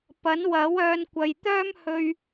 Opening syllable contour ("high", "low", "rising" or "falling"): rising